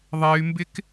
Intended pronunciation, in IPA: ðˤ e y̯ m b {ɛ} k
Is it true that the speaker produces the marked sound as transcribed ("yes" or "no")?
no